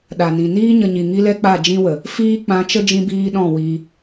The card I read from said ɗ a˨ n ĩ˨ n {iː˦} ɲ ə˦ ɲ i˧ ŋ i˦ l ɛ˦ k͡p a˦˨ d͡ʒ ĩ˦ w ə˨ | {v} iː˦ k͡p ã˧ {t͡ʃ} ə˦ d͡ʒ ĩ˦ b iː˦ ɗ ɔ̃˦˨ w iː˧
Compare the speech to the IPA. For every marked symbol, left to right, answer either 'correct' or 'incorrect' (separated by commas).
correct, incorrect, correct